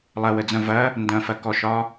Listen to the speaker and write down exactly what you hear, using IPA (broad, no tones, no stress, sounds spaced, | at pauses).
lˠ ɐ w ə d͡z ɐ̃ v ɐ | n d ɐ̃ f ɐ k ɔ ʃ ɒ